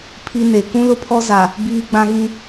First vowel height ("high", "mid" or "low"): high